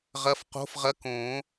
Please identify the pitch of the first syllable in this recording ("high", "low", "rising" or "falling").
rising